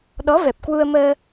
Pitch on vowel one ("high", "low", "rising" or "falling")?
rising